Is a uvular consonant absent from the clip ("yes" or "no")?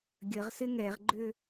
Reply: no